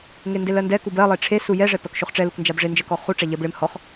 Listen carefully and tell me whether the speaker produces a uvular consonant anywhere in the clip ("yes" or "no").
yes